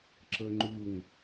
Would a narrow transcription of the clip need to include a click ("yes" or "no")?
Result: yes